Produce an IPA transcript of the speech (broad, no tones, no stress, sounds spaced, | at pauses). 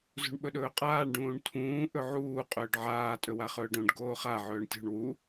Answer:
z ṳ ɳ ɓ ɵ ɗ ɵː qʼ aː ɳ ɖ ũː ɳ tʰ ũː ʔ ɵ ʕ uː qʼ ɵː ɖ ʕ aː tʼ ɵ w a χ ɵː ɖ õ ɖ ɡ oː χ a ʕ ɵː ɳ tʲ ṳ ɳ w u